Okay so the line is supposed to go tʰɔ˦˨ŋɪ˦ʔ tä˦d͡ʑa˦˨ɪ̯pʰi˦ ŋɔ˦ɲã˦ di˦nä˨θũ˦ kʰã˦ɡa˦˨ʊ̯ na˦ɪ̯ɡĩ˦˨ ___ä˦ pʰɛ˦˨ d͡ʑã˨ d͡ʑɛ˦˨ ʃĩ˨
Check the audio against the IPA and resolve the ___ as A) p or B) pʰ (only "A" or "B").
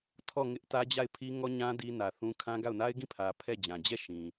B